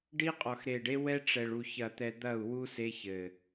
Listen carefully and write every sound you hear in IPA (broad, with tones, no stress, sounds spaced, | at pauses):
ɖ i˦ qʼ ɔ˨ x ɾ e˨ ɖ e˦ w ɛ˦ ʈ͡ʂ ɛ˨ ɭ u˨ ç ɐ˨ t̪ ɛ˨ d̪ ɐ˦˨ u̯ w u˦ s e˦ ç ɘ˨